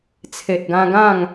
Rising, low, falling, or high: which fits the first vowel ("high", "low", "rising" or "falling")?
low